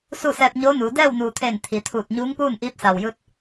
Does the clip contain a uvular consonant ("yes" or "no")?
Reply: no